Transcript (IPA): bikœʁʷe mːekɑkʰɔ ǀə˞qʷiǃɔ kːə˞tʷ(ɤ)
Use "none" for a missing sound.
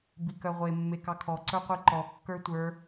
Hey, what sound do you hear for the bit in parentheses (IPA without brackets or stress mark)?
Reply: ə˞